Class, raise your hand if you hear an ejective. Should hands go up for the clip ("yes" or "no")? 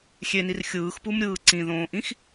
no